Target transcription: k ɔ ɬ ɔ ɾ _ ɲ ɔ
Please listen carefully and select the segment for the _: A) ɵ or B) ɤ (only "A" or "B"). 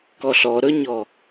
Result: A